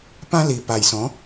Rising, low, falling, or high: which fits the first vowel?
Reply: high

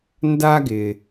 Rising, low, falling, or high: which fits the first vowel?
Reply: high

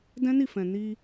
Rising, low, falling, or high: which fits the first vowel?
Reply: high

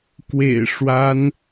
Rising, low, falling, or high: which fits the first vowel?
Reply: low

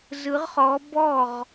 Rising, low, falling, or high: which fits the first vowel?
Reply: rising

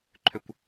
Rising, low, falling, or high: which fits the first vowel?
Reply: high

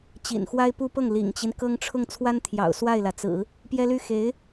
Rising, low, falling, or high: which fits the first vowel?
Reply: low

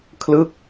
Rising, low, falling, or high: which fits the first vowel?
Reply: falling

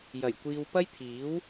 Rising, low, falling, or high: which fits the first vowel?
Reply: low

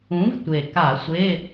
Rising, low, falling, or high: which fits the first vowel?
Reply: rising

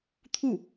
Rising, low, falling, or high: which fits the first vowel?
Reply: falling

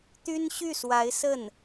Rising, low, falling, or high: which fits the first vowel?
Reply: high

